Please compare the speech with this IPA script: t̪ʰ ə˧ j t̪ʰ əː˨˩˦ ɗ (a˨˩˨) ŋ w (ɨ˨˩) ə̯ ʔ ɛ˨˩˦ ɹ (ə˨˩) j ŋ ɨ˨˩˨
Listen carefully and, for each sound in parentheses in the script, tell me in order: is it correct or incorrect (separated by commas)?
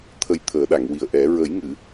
correct, incorrect, incorrect